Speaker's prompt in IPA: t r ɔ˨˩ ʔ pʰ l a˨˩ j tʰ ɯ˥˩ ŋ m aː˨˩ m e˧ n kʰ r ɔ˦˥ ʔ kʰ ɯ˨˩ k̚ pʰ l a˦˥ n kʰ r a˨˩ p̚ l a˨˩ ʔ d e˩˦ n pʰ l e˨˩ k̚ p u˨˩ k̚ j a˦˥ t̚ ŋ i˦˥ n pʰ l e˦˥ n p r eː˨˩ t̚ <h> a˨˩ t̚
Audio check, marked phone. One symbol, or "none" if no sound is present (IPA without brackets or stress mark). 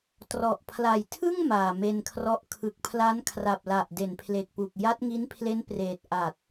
ʔ